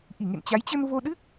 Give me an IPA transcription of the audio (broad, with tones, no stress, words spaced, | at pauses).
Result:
ʔi˧˩ŋḛ˧˨nt͡ɕa˨˦j t͡ɕə˧n vo˧ɗɨ˦˥k̚